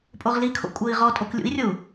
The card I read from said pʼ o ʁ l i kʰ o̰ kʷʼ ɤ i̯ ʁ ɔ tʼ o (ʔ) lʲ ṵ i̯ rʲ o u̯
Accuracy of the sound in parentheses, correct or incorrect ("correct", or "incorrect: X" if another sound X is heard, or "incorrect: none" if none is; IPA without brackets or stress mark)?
incorrect: k